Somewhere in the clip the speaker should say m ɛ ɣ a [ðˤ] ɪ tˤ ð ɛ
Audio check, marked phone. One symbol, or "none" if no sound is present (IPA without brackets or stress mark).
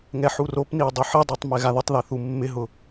ð